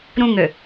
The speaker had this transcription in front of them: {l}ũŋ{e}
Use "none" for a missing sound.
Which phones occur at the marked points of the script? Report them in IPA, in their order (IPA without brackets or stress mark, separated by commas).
ɾ, ø